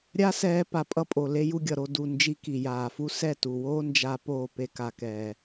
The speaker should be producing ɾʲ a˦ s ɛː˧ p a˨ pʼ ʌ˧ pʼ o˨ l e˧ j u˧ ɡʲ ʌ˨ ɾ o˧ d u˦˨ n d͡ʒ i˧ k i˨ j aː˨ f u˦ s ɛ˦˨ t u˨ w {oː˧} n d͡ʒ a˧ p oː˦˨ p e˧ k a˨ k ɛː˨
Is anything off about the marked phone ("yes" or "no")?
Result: yes